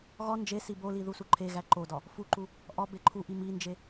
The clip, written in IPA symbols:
ɣɒ nd͡ʒe siboli ðusuǃʰeɣæ ǃodɒ | fuǃu | ʔɒ beǃʰuʔi mind͡ʒe

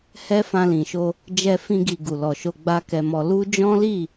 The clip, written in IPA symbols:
hɛ˦fã˧lĩ˨ʃo˧ | d͡ʒɛ˧fĩ˧ɡi˨ ɡu˨lɔ˨ʃo˧ ɡ͡ba˦kɛ˧mɔ˧ lu˦ d͡ʒɔ̃˦li˦˨

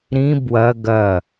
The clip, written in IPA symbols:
ɾĩ bwɐ ɡɐ

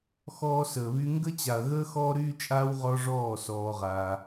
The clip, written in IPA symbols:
xɔː˦səː˨βy˦ ŋɡə˦t͡ɕa˨ɐ̯ɣəː˦ xɔː˦ɾyː˦t͡ʃʼaː˦w ʁɔ˦ʐɔː˦˨ sɔː˧ʁaː˧

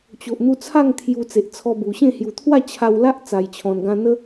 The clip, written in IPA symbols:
t͡ɕo˨ʔ n̪u˧t͡sʰa˥˧ŋ t̪ʰju˧t͡se˨ʔt͡sʰɔ˧bu˨˩ ɕẽ˥˧ hju˨˩t̪ʰwa˥˧ t͡ɕʰa˧wla˦ʔ t͡sa˨˩jt͡ɕʰɔ̃˨˩nɡã˧n̪ə˦

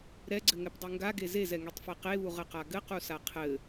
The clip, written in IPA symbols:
ɾɛɡ͡ǀɘŋɛpdˤu ŋɡaɡe zezɛŋetˤfe qeβuʁɘqa ɡɘqusa qʰɘ

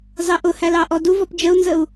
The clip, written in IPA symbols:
zɑʔʊhæl ɑʔɔduvɔp d͡ʒəu̯nzəu̯

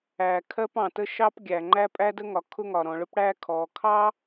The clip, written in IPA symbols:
æ˩ kʰɜ˥pɑ̃˩tə˥ ʃɑ˥pɡʲæ˩ŋ͡ǃæ˥ pʼæ˥də˥ŋɒ˩ kʰʊ˥ŋɒ˩ɾɔ̃˩ ɭʊ˥pɽæ˥kʰɔː˩ kʰɑ˥

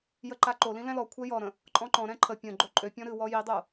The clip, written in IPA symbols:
jəǃaǃolĩ lɛ̃lɔkʷʰɛ jɔɾə̃ | ǃʼɔ̃ǃɔ̃ɾɛ̃ ǃʰə pʲə̃ɡ͡ǃo ǃʼøpʲɔ̃ ɾɨwɔ jidˤo

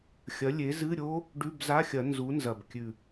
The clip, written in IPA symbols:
xʲɐ˨˥lʲe˨˥zɨ˧˥˧ɾʲo˦˥ | ɖʉ˧˥˧bza˧˥˧xʲɐ˨˩˦ nzu˨˥nzɐ˨˩bkʲʉ˨˩

